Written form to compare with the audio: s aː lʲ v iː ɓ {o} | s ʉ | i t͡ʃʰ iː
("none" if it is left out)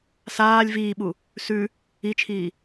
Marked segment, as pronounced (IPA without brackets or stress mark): u